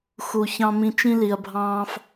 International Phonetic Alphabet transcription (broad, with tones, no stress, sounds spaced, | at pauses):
x u˧ ç ɑ̃˦ m ĩ˦ t͡ʃ ĩ˦ l i˧ ɐ̯ bʱ ɑ̃ː˦ f